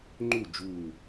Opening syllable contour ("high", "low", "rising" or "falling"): falling